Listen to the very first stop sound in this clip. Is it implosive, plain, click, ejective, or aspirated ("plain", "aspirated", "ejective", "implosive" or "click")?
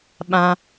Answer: implosive